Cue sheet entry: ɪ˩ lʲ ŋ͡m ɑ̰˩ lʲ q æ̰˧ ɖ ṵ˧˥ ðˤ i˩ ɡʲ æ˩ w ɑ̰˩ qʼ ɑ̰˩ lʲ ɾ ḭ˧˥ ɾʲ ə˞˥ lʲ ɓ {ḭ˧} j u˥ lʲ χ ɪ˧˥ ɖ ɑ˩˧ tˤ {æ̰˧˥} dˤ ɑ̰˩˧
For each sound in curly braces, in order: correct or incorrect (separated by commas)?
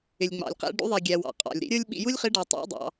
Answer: correct, correct